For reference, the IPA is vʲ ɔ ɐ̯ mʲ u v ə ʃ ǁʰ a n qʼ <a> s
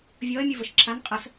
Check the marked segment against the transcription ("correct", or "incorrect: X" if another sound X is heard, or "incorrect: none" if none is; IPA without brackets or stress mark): incorrect: ə